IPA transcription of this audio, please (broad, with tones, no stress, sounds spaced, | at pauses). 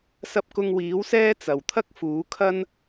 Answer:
s ɐ˧ p̚ k ʊ˧ ŋ w iː˨˥ w s ɛː˥ t͡s ɐ˨ w t̪ʰ ɐ˥ k̚ f uː˨˥ kʰ ɐ˥ n